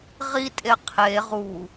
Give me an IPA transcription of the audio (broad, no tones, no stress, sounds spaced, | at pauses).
ʁ i tʼ e qʰ e ʁ u